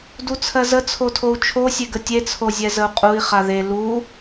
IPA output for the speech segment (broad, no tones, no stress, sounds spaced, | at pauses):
d u t͡sʰ ɜ z ə t͡sʰ o tʰ o u̯ t͡ʃʰ o sʲ e ɡ ə tʲ e t͡sʰ o zʲ ɛ z ə u̯ qʼ u i̯ χ a ð e l u